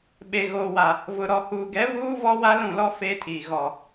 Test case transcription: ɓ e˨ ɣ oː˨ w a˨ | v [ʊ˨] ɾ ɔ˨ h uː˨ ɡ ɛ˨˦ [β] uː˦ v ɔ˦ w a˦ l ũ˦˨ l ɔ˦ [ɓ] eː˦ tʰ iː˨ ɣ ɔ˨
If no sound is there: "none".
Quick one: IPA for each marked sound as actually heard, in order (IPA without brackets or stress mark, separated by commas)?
ʊ˨, β, f